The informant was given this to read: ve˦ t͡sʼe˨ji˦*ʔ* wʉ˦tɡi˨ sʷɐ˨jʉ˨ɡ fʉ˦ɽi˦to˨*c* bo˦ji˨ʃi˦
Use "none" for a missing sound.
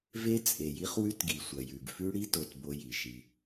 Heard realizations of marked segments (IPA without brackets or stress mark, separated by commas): χ, t